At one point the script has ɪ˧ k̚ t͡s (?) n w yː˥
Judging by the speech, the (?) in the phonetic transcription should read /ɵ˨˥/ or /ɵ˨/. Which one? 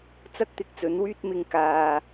ɵ˨˥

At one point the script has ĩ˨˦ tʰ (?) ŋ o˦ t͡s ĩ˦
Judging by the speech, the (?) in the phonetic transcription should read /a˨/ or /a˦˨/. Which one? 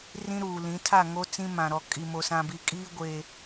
a˦˨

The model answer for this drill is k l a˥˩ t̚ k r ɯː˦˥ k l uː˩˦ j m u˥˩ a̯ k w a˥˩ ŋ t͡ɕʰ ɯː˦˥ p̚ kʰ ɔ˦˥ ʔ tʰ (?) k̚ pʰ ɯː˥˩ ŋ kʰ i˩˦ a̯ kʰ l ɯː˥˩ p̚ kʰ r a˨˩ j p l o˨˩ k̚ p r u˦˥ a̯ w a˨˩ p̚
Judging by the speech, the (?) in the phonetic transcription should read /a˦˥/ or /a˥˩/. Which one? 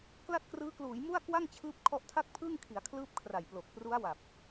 a˥˩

